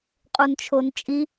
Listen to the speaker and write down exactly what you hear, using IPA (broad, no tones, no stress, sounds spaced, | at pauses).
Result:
qʼ u n t͡ʃʰ o n t͡ʃʼ i